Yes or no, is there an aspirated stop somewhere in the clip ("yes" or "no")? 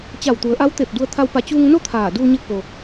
yes